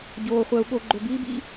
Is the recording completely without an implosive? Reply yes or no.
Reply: no